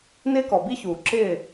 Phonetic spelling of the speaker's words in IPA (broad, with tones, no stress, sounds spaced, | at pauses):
n ɪː˦ k ɔ˨ b i˦ ç uː˨ ǁ ɪː˦˨